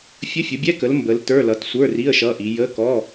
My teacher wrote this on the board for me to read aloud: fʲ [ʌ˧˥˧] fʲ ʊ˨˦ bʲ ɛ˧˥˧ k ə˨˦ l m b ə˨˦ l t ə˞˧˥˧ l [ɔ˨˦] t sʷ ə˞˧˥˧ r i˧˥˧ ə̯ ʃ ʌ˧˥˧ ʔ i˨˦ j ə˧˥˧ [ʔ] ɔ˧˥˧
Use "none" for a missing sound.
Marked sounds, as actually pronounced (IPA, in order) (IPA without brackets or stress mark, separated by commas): ə˧˥˧, ʌ˨˦, k